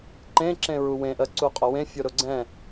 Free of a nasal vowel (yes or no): no